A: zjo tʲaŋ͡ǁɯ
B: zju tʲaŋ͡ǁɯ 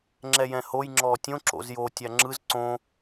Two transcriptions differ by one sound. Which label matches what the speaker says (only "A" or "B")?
A